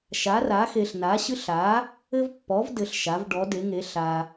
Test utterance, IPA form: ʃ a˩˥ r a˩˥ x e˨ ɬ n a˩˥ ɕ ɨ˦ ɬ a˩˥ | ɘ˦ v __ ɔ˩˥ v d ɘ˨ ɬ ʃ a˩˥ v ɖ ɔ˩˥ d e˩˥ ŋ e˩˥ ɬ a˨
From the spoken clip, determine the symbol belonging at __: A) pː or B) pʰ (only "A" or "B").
A